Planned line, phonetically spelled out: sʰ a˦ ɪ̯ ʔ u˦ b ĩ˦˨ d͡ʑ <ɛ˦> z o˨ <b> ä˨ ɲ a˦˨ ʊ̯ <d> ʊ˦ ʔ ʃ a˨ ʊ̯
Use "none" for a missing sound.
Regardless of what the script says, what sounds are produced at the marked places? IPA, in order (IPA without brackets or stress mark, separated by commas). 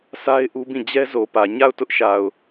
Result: ɛ˦, p, t